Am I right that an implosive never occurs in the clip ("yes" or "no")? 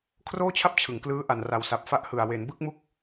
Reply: yes